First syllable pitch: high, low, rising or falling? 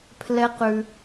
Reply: high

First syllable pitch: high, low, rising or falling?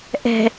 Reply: low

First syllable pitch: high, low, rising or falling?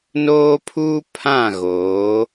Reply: high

